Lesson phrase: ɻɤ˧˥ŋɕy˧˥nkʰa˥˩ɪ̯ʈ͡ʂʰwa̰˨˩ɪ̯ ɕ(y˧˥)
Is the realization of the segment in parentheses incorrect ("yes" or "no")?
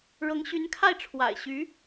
no